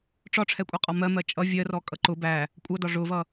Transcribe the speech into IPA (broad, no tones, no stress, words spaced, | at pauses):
ʈ͡ʂɒʈ͡ʂʰɛkʷʼʌqʼɒ mɜmɜ t͡ʃʼʌ vʲɜrɔkʼʌ ǃʊ bæ | kʷʼʌdɒ ʐʊvʌ